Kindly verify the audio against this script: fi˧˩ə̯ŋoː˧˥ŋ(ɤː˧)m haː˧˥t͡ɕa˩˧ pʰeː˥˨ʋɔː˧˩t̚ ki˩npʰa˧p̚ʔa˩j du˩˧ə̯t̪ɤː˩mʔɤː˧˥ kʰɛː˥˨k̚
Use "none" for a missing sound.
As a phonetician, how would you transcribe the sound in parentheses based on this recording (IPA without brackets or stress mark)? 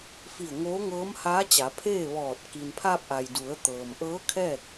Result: ɤː˧˥